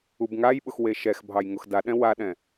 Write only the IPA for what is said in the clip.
u b ŋ a j ɓ ʊ x w e ʃ ɛ x bʱ ɑ j ŋ ʊ x d a ɗ ɛ̃ w a ɗ ɛ̃

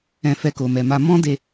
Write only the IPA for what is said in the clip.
ɛ̃˧ f ɛ˧ k o˨ m ɛ˨ m a˧ m ɔ̃˦ d e˧

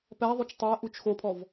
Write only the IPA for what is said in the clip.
p æ ðˤ u t͡ʃ tˤ æ ʔ u t͡ʃ x o pʰ ɔ v

